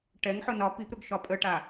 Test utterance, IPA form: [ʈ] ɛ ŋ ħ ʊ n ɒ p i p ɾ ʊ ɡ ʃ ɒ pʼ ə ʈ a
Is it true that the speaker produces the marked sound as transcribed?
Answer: yes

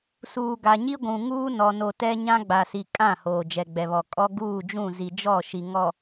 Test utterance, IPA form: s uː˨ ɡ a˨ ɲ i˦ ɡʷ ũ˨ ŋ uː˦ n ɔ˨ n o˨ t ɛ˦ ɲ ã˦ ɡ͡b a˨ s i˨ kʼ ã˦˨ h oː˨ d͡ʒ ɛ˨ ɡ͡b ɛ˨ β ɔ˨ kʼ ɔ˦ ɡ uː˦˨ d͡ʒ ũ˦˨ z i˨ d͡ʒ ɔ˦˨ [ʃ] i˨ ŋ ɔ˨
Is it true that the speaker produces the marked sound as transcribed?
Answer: yes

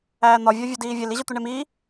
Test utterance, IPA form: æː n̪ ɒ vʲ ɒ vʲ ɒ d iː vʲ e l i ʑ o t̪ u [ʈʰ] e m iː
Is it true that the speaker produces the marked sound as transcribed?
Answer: no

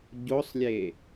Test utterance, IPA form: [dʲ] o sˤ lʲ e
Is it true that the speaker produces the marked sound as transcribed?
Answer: no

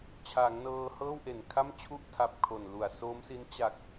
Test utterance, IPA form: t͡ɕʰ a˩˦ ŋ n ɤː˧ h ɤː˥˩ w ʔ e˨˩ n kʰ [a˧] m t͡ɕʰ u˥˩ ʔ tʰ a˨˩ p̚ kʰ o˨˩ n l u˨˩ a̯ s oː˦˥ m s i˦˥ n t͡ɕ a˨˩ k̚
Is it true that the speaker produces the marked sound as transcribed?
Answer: no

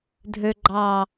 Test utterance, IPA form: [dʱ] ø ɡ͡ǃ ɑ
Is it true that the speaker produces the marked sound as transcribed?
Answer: yes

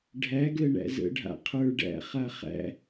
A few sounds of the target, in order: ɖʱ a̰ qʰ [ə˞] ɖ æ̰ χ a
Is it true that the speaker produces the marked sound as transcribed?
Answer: yes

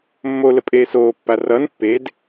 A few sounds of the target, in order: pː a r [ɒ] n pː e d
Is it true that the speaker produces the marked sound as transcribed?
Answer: no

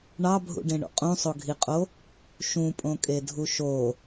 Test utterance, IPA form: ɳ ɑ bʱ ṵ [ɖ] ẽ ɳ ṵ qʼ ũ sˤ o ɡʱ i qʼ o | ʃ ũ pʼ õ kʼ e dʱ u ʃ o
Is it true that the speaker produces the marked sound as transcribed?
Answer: yes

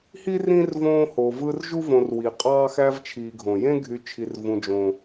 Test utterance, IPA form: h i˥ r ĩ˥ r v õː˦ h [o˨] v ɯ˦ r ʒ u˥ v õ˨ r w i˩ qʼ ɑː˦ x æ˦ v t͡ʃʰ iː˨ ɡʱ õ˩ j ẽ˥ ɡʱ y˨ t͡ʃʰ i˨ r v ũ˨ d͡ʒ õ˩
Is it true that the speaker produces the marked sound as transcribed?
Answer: yes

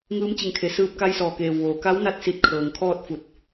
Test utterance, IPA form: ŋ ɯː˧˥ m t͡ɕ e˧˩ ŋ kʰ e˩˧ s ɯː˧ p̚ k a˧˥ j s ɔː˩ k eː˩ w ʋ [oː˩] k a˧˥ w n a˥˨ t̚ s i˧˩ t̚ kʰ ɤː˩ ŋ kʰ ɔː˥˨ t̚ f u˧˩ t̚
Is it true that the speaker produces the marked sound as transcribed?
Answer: yes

